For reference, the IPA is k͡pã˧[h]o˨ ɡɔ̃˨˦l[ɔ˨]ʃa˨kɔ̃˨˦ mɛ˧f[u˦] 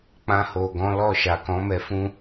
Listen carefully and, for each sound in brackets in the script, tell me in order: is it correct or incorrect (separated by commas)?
correct, incorrect, incorrect